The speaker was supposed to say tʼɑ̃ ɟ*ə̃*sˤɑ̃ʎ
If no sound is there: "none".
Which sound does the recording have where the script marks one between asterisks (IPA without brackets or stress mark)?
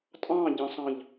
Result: ə̃